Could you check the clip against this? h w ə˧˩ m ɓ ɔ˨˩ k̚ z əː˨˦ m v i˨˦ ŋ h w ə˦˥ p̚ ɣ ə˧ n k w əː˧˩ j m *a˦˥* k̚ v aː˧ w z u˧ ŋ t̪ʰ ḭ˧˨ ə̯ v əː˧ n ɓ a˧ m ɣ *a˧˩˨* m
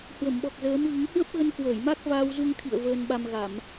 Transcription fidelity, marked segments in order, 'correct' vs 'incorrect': correct, correct

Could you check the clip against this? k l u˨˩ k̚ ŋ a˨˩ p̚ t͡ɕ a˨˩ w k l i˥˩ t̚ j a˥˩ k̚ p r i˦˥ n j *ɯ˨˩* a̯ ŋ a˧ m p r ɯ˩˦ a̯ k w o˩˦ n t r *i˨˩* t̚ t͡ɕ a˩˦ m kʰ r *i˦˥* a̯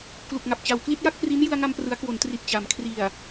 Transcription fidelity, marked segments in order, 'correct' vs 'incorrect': incorrect: ɯ˧, correct, incorrect: i˨˩

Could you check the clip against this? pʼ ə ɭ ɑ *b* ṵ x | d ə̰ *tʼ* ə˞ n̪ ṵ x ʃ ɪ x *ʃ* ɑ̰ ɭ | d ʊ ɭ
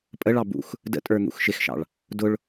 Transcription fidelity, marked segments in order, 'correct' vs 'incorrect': correct, correct, correct

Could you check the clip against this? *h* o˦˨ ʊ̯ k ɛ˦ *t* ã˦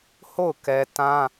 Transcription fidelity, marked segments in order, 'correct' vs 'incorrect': correct, correct

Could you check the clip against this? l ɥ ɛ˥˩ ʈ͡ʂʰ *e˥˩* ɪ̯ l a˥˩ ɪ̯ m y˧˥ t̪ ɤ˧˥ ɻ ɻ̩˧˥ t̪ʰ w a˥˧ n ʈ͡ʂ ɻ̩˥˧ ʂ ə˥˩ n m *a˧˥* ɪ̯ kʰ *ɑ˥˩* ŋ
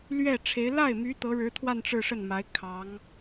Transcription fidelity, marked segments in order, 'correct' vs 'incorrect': incorrect: e˧˥, correct, incorrect: ɑ˧˥

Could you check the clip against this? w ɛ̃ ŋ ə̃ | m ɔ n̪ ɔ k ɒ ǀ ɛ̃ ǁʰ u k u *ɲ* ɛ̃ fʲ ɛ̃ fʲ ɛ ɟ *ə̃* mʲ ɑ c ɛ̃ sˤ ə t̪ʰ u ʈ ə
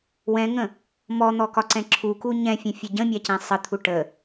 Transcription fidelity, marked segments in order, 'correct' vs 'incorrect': correct, correct

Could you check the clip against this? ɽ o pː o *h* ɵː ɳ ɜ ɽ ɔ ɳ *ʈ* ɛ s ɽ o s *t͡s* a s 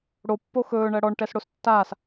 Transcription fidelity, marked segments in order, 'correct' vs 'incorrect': incorrect: x, correct, incorrect: tː

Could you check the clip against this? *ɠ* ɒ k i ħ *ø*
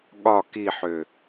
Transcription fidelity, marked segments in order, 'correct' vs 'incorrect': correct, correct

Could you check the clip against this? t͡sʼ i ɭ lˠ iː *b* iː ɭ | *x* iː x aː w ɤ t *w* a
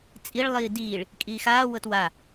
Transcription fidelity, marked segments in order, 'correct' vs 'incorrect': incorrect: d, incorrect: kʼ, correct

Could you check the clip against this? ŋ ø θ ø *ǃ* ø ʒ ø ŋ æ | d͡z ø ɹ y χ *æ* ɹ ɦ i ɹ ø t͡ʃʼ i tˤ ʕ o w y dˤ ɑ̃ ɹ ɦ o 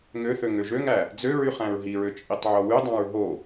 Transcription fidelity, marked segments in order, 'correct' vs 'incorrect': incorrect: ŋ, incorrect: æ̃

